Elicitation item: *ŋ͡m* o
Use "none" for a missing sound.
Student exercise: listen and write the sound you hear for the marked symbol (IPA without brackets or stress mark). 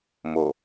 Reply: m